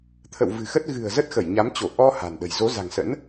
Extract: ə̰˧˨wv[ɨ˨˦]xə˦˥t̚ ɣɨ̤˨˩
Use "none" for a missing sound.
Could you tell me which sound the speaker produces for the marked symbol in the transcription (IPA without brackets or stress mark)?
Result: ɨ̤˨˩